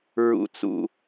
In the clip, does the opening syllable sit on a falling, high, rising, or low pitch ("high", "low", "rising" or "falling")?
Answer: high